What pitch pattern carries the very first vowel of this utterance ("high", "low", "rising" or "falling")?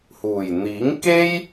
low